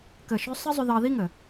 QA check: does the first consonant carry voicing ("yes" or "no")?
no